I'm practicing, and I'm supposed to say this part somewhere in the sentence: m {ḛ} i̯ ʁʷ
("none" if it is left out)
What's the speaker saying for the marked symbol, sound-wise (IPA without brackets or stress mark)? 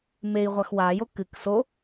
e